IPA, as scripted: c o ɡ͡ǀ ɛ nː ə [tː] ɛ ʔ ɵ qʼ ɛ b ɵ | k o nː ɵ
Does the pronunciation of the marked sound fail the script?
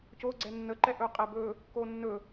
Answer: yes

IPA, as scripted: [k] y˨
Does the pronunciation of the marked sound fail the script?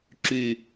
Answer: yes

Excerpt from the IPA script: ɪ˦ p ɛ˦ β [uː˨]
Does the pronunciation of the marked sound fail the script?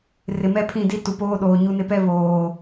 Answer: yes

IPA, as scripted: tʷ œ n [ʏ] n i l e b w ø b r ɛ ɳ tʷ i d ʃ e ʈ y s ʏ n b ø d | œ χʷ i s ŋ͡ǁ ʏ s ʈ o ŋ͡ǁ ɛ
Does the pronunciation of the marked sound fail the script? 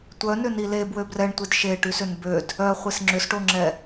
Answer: no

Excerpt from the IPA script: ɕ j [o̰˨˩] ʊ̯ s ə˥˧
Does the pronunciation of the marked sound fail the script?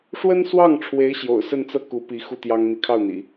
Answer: no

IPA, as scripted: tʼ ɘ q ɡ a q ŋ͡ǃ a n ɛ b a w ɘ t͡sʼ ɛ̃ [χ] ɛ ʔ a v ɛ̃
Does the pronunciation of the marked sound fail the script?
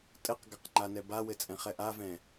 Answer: no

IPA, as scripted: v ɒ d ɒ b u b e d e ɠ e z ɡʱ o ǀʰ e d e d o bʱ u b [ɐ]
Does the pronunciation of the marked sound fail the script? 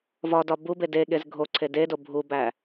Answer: yes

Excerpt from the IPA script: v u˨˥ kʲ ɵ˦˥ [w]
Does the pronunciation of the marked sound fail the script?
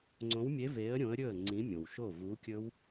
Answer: no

